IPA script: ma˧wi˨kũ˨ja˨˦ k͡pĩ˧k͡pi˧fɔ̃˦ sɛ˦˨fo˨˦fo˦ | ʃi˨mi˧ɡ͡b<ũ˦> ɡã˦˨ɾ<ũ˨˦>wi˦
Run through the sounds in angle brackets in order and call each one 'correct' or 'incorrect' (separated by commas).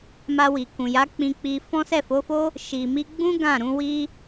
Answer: correct, correct